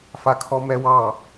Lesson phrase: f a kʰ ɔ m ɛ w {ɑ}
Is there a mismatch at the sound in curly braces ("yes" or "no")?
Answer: no